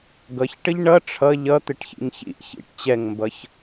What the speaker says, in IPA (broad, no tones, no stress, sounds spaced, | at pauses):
ɡ ʌ ç ʈ ə ʎ ɳ ʌ ʈ͡ʂʰ ʌ ʎ ʌ t̪ ɪ ʈ ç ḭ ŋ ç ḭ ʔ ç ḭ ʈ t͡ɕ ɛ ŋ m b ʌ ç